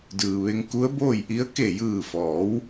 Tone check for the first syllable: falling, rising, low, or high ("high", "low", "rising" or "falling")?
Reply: low